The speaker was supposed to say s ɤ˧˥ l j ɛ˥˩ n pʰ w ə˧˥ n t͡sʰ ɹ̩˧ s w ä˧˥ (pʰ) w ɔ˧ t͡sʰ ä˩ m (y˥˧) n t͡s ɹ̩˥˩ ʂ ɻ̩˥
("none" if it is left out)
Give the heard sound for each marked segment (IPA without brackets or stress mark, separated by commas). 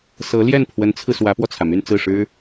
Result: p, y˥˧